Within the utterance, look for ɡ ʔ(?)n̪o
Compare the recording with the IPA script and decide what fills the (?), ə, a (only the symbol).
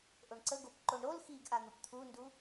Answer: a